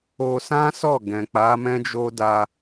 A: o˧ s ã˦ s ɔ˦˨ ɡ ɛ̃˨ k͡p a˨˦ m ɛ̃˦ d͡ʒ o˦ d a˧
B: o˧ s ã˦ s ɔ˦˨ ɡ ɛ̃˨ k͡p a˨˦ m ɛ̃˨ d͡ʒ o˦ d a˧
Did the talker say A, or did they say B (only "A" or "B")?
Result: A